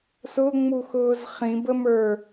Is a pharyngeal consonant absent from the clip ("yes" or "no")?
yes